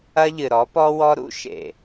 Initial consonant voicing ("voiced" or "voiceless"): voiced